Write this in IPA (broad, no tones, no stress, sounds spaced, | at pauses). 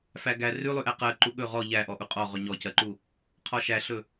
f æ ɡ æ r ʉ lˠ ʉ ʔ æ q ɜ ǃ u ɠ ɵ ʁ ɔ ʎ æ ʔ ɔ ʔ u qʼ ɔ ʁ ɵ ɲ ɔ c ɜ ǃ u | qʰ ɔ ʃ æ ɬ ɵ